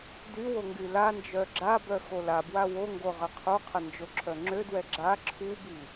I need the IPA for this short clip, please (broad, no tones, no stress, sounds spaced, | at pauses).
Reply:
d y w o ŋ ɡ y l a n d͡ʒ œ ɡ͡ǁ a b œ x o l a b w a w o ŋ ɡ o ʁ ə qʰ u qʰ ə n d͡ʒ o ǁʰ œ ŋ͡ǁ ø d w ɛ ɡ͡ǁ a ǁʰ u b i